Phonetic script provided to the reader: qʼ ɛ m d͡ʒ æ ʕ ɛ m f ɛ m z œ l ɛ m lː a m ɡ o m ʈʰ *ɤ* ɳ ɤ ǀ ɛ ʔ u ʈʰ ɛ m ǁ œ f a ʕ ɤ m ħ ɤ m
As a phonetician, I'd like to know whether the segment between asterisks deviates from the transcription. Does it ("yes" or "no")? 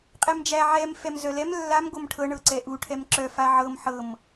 no